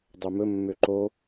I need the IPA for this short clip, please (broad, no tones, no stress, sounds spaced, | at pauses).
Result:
dˤ œ m ɵ mː ø ǃ o